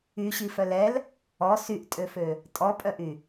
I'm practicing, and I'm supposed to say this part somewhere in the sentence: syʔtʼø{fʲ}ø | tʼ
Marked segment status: incorrect: f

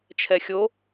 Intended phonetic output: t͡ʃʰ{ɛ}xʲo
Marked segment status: correct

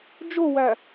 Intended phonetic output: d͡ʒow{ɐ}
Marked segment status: incorrect: æ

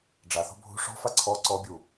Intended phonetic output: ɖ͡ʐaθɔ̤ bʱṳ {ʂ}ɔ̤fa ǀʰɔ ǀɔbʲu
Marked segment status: correct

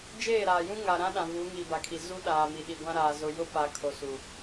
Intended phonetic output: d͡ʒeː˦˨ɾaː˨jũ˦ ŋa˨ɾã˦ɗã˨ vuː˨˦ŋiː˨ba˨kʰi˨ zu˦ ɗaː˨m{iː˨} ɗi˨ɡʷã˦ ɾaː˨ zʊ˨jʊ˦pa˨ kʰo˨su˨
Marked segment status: incorrect: i˨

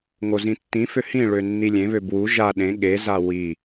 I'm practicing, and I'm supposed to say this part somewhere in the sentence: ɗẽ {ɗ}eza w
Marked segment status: incorrect: ɠ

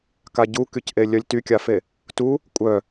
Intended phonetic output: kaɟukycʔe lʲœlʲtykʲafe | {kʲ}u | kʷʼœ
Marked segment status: incorrect: t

